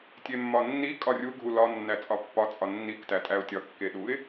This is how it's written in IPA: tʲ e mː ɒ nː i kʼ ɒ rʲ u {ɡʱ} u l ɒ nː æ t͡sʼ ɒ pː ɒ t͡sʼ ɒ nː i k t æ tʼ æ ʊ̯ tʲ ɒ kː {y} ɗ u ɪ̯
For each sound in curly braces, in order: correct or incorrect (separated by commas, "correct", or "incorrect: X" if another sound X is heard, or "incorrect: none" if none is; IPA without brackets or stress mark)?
correct, incorrect: e